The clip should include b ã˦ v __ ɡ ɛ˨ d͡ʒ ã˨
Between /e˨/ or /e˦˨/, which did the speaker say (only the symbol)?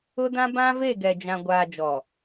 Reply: e˦˨